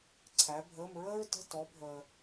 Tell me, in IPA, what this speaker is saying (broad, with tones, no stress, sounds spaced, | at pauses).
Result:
ǀʰ æ˨˦ bʱ əː˧˥˧ m ɹ əː˥ ɹ t ə̤˧˥˧ t ɔ˨˦ bʱ əː˨